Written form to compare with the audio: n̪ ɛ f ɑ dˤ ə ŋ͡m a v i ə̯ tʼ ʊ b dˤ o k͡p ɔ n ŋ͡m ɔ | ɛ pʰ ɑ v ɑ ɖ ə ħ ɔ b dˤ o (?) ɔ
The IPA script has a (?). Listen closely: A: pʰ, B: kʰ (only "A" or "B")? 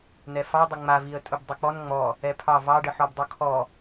B